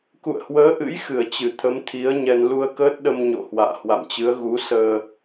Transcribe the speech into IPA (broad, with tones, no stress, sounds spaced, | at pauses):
k ṵ˧˨ ə̯ h w əː˨˦ ʔ ɨ̰˧˥ j x ɨ˧˩ ə̯ t͡ɕ ɨ˧˩ t̪ʰ ə˨˦ m t̪ʰ i˨˦ ə̯ ɲ ɛ˧ n l u˧ ə̯ k əː˦˥ t̚ ɗ ə˧ m ɲ o̰˧˨ h w a̰ː˧˨ h w a̰˧˨ m t͡ɕ ɨ˨˦ ə̯ ɣ u˨˦ s əː˧